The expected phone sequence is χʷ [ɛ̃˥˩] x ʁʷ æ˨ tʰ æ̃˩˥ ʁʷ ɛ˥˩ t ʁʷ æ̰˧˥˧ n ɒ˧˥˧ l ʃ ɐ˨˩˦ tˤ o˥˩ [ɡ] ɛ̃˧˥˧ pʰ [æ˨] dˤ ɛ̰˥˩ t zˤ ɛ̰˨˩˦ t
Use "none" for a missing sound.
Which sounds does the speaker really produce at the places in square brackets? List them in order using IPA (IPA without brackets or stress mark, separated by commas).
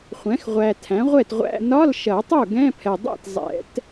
ɛ̃˩˥, ɡ, ɛ˨